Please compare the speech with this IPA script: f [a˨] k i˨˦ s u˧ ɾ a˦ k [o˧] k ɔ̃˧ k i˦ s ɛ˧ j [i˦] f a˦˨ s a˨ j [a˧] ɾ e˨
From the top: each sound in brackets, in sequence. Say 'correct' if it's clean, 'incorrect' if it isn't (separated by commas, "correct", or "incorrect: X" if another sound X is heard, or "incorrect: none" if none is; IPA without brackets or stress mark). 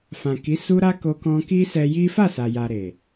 incorrect: ã˨, correct, correct, incorrect: a˨